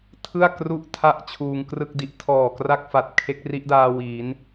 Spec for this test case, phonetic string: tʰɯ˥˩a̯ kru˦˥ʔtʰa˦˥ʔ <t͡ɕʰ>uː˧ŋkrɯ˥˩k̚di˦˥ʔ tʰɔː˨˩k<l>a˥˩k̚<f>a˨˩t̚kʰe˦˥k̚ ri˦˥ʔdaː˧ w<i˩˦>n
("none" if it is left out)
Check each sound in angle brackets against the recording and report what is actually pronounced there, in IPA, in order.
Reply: t͡ɕʰ, r, f, i˩˦

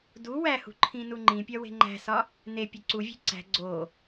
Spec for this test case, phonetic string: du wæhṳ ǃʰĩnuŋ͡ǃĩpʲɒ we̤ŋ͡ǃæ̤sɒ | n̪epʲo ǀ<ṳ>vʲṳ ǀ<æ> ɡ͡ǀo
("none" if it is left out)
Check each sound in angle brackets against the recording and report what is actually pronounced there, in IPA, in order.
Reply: u, æ̤

